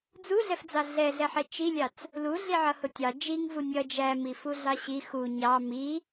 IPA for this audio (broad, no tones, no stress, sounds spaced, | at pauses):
d͡z u ɮ ɛ f d͡z ɑ ɮ ɛ ɮ ɛ ħ ɛ t͡ʃ i lʲ ɑ t͡s | l u ɮ i ʕ ʌ h ʊ tʲ ɑ d͡ʒ i ŋ v u nʲ ʌ d͡ʒ æ m i f u ɮ ɑ ɕ i x u ɲ ɑ m i